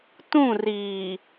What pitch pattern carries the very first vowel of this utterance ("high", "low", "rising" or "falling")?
falling